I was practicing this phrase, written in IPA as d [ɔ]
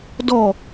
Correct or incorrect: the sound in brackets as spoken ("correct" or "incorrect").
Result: correct